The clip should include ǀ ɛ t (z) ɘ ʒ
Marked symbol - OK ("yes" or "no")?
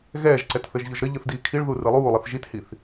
no